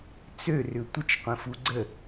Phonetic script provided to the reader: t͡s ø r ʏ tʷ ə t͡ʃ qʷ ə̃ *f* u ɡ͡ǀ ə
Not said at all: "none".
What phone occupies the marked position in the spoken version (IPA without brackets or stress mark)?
f